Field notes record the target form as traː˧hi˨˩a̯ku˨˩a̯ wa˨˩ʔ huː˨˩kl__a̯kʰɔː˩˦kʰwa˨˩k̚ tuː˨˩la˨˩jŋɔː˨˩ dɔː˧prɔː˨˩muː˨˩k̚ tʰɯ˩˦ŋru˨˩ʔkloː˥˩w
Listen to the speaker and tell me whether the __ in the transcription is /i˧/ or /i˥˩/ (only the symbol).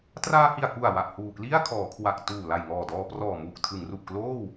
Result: i˥˩